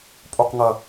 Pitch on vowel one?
falling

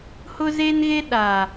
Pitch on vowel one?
high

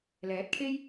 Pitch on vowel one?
rising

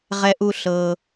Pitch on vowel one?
high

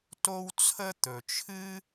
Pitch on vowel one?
high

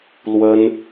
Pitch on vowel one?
high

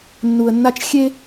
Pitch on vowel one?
low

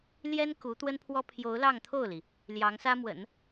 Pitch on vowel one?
high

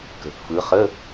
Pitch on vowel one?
low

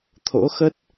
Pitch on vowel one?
rising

